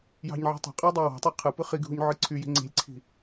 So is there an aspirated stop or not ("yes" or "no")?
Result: yes